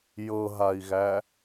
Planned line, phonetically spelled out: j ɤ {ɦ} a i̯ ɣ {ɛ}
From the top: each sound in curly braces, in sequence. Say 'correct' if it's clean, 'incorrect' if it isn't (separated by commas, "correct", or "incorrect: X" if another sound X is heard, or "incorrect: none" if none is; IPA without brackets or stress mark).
correct, incorrect: æ